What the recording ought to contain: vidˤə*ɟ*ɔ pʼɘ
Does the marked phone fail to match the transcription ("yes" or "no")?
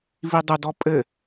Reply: yes